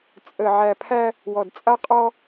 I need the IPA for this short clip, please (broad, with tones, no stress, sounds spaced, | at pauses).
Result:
t͡sʼ ə˨ ʕ æ˨ pʰ æ˦ | w ɔ˨ d t͡sʼ a˦ qʼ ɔ˦